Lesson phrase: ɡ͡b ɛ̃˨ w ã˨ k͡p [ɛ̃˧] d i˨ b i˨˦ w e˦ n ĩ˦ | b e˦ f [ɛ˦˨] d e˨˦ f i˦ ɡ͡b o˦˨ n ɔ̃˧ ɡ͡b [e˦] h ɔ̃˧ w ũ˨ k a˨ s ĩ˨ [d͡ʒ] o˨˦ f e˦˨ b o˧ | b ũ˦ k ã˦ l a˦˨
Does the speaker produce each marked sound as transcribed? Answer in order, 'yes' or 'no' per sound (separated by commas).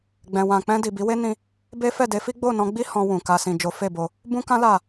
yes, yes, no, yes